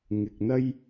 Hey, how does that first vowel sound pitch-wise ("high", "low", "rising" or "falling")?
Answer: low